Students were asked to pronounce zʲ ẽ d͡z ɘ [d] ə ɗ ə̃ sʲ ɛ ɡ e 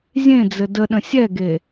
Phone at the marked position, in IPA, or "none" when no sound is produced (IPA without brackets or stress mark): d